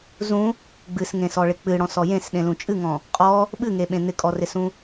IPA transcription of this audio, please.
zũ | ɡ͡bɨsŋẽsɔɭɪ k͡pɨɽɔ̃sɔ jẽsɗẽlũ t͡ʃʼɨŋɔ̃ | qʼɔ | ɓɨŋeɓẽ n̪ɪkʼɔrɪsũ

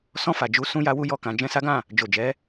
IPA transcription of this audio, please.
sɔ̃˧fa˨d͡ʒu˨˦ sũ˦ja˦wu˦ jɔ˦˨kã˨˦d͡ʒɛ̃˦ sa˦ɡã˦˨ | d͡ʒo˨d͡ʒɛ˨˦

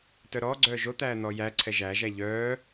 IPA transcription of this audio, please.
tœɾɔːɡ͡ǀœː ʒot̪æː n̪ɔːjæǀʰɛ ʒæʒæ ʎœː

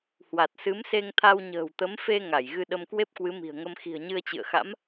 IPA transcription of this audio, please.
hwa˨˩t̚sɨ˨˦m se˧ŋt̪ʰa˧wɲə̤ː˨˩w t̪ə˨˦m fe˧ ŋa˧˩jɣɨ˧ɗə˧mkwe˦˥p̚ kwɨ˨˦mi̤˨˩ə̯ŋə˧m xi̤˨˩ə̯ɲɨ˧ə̯t͡ɕɨ̰˧˨ə̯xa̰˧˥m

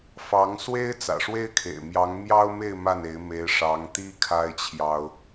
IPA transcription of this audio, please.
fɑ˧˥ŋswe˥ɪ̯ t͡sä̰˨˩ʂwe˥ɪ̯kʰḛ˨˩ɪ̯mjɑ˧˥ŋ mjɑ˥ʊ̯me˥˧ɪ̯ ma˥˩ne˧˥ɪ̯me˧˥ɪ̯ ʂɑ˧˥ŋt̪i˥ kʰa˥ɪ̯t͡ɕʰjɑ˥ʊ̯

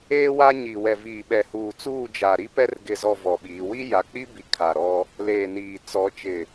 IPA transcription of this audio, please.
eː˦wa˦ɲiː˨ wɛ˨viː˨ɓɛ˨huː˨ t͡suː˦˨d͡ʒa˨ɾi˦pɛ˦r ɡɪ˨zɔ˨ vɔ˨ɓiː˨˦ wi˦ja˨k͡pi˦bi˨ kʰa˨ɾɔ˦ | leː˨niː˨ t͡sɔ˨˦t͡ʃɪ˨

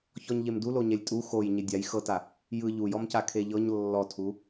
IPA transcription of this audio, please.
çɔɲʎemdulo ɲɛlʲtʼu xoj ɲedʲaj xɤta | jɯ ʎujɔmca kʰeʎɤɲ lːɔtʰu

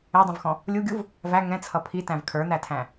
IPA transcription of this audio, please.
ɛdˤũvxɔ̃ | lʲuɡʲuv | væ ŋɛ̃t͡sʰʌ pʰitæ̃v kʰə˞n̪ætʰæ̃

